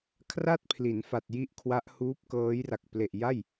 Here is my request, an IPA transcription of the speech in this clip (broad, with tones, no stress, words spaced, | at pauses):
kʰra˥˩t̚pʰli˩˦n fa˨˩t̚ji˥˩ʔkʰwa˦˥ʔhuː˦˥p̚ kɤː˦˥jra˨˩k̚ ple˨˩ʔja˥˩j